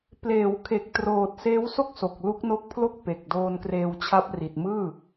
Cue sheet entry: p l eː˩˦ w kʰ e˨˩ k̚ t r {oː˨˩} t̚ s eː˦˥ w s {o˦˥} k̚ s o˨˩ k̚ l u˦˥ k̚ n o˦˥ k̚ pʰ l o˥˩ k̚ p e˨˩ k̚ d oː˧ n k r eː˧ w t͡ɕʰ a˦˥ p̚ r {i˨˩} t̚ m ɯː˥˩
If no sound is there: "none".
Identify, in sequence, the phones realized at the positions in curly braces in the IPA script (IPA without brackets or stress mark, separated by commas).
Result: oː˨˩, o˥˩, i˨˩